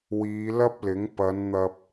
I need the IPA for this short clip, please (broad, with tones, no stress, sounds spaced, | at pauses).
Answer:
w iː˨˧ l ɐ˥ p̚ l ɪ˨˥ ŋ p ɐ˨˧ n n̪ ɐ˧ p̚